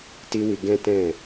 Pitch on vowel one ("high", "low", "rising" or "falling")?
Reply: high